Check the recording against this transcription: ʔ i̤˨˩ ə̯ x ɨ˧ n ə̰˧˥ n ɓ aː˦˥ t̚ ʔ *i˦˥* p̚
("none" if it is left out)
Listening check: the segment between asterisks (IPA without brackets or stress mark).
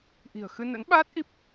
i˦˥